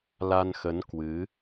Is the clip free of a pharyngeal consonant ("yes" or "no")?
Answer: yes